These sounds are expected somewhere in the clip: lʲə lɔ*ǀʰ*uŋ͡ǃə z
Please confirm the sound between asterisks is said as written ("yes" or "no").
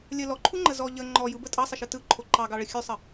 no